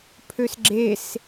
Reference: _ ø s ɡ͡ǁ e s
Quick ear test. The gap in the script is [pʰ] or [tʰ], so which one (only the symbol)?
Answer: pʰ